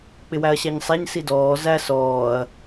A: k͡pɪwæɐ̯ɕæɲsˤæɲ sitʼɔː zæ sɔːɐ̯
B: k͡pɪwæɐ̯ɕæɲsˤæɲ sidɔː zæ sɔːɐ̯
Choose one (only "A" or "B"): B